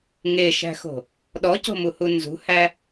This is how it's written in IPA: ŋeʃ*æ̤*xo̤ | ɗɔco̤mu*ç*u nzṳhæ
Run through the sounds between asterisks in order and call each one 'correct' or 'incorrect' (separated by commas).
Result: correct, incorrect